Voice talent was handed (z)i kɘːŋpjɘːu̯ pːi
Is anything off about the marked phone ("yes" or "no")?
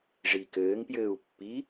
yes